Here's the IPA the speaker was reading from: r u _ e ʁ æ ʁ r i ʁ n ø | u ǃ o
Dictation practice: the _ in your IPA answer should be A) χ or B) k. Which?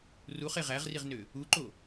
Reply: A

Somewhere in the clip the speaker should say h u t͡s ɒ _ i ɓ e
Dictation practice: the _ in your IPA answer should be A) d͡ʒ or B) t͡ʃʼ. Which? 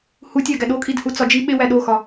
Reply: A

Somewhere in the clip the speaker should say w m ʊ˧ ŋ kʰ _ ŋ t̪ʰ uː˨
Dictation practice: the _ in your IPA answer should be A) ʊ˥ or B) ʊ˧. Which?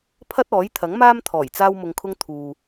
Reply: A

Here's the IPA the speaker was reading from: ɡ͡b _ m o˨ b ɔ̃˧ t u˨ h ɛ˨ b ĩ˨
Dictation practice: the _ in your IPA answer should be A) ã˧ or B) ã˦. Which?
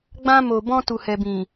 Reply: A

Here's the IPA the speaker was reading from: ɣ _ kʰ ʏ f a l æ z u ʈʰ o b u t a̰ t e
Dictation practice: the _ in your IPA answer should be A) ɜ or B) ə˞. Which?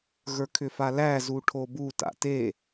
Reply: B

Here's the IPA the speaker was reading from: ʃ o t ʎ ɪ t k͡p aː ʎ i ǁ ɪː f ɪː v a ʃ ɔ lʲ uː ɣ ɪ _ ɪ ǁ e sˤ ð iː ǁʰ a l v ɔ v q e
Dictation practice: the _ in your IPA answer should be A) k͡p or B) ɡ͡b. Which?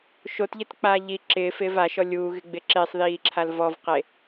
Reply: B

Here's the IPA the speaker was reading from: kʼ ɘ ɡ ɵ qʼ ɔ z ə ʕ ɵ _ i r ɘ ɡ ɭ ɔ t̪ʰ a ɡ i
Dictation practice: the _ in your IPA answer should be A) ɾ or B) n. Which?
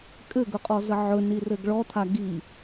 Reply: B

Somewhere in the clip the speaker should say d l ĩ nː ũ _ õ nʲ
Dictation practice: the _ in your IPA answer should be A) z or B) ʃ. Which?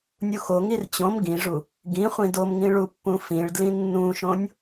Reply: B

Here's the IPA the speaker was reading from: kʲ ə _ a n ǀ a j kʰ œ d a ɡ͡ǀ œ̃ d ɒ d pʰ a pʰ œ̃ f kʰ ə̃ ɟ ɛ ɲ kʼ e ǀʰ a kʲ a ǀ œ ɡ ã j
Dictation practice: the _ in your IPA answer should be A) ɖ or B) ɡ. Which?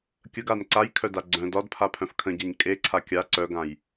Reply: B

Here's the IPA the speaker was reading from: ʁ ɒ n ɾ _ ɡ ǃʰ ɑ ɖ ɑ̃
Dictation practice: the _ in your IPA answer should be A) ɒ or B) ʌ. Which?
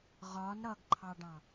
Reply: B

